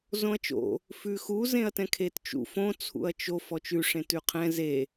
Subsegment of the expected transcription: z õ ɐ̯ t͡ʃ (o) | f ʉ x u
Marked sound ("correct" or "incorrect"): incorrect